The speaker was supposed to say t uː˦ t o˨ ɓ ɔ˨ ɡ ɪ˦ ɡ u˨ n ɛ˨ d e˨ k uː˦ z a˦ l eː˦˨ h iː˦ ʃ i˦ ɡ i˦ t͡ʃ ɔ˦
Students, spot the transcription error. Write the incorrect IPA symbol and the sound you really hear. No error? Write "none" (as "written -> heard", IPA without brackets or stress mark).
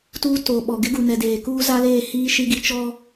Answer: e˨ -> eː˨